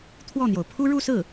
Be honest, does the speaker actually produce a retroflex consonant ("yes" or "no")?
yes